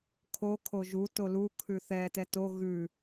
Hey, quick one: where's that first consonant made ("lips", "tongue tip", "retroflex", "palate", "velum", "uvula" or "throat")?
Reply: velum